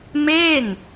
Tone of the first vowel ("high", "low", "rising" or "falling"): falling